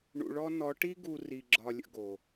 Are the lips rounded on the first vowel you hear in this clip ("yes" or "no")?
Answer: yes